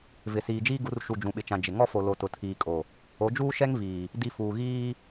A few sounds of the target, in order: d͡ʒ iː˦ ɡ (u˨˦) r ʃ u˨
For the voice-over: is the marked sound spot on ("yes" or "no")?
yes